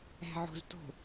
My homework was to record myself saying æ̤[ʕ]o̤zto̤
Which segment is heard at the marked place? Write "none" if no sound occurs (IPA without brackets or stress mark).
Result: ʕ